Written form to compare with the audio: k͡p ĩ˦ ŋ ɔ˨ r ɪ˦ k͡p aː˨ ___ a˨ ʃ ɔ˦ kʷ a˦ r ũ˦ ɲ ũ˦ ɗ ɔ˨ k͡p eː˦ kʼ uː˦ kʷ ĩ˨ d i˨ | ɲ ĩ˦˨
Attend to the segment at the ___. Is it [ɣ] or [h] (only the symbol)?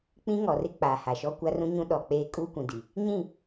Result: h